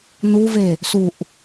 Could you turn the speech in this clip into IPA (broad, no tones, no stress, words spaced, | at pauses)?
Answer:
nuve | suʔ